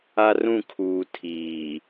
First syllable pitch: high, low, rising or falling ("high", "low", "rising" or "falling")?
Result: high